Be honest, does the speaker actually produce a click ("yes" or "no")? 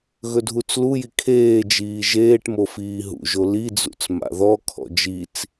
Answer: no